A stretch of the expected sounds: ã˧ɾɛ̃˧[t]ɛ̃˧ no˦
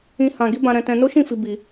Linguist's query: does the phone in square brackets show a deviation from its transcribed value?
no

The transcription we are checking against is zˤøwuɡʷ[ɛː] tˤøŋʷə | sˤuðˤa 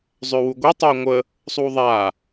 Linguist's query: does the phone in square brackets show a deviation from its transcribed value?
yes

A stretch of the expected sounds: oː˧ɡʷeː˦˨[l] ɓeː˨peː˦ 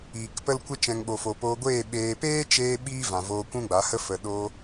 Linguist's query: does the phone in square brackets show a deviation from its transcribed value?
yes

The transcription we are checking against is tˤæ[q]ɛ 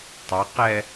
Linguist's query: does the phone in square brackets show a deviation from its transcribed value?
no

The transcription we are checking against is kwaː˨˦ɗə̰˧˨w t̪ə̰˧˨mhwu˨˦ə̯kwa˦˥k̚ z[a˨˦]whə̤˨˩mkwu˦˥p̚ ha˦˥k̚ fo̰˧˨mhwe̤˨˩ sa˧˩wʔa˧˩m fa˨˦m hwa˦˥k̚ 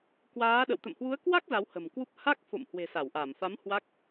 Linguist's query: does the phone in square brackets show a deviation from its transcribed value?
no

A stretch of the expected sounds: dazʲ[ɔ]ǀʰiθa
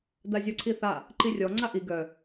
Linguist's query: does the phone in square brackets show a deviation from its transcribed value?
no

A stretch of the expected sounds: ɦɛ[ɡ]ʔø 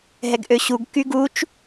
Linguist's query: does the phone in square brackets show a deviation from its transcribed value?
no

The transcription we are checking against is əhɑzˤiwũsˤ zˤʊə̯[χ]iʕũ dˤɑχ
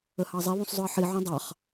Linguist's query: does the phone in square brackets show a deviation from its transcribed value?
yes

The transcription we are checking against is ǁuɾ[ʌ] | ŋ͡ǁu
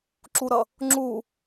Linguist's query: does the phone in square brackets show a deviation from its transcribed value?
no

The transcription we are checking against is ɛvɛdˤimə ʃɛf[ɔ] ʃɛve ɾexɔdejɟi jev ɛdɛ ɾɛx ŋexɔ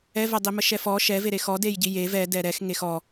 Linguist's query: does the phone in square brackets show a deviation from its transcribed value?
no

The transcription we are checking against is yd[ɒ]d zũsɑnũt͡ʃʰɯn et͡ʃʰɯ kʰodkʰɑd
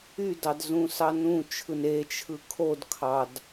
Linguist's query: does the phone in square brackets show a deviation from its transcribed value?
yes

